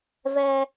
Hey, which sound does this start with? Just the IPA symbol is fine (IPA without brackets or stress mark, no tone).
v